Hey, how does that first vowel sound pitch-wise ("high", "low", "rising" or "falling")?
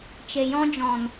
low